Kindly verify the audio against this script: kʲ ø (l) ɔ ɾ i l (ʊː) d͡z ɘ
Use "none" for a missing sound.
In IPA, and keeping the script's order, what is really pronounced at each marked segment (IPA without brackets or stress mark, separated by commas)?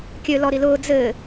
l, ʊː